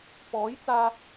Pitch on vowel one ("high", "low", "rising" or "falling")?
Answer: rising